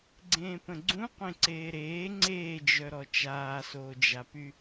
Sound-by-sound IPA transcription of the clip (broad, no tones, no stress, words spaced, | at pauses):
ɡ͡ǀẽːpə̃ɡ͡ǀũ qʷẽǀeːɾeː ŋ͡ǀeːd͡ʒœɾɔ t͡ʃaːsoːd͡ʒapy